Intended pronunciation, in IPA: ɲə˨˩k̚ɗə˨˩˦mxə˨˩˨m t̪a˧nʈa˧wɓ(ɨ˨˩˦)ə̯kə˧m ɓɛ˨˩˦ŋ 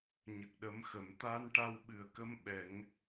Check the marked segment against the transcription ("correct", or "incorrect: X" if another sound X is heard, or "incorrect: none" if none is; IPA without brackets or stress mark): incorrect: ɨ˨˩